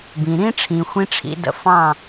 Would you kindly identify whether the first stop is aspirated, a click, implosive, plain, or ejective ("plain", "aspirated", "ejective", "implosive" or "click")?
plain